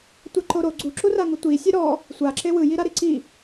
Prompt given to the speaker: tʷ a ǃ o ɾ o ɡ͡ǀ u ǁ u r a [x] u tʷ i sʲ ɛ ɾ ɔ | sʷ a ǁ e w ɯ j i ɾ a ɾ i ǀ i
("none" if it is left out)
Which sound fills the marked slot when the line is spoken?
ŋ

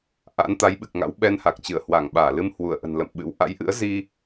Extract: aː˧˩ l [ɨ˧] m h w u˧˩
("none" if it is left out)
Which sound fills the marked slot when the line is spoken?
ɨ˧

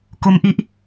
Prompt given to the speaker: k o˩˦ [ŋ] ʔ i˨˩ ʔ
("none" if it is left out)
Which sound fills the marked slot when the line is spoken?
m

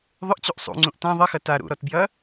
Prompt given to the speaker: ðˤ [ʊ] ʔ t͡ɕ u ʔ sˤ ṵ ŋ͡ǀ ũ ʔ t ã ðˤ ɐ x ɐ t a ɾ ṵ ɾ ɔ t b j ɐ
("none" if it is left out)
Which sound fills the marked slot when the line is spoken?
ʊ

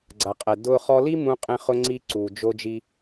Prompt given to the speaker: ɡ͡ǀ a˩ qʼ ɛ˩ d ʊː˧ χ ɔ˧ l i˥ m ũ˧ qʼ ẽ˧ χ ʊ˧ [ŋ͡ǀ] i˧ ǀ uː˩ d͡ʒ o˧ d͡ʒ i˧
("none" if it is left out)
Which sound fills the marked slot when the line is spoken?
ŋ͡ǀ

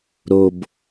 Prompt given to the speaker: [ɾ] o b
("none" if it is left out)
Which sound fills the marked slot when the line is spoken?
ɾ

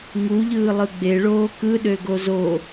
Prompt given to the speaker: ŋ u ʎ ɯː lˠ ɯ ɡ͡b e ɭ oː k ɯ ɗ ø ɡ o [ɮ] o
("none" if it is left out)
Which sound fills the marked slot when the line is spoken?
z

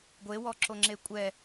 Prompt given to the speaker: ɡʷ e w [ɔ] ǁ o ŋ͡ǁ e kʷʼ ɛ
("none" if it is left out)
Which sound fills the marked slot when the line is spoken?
ɔ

